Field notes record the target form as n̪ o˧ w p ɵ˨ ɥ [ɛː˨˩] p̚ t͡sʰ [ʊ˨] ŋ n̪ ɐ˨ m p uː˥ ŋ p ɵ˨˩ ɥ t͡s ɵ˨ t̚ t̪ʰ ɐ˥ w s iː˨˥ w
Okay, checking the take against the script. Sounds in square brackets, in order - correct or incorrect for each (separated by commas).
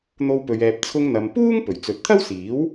incorrect, incorrect